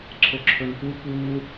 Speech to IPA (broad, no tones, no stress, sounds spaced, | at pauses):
ǀʰ o ǁʰ ɵ n p u p u